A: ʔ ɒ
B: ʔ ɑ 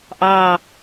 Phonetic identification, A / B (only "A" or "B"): B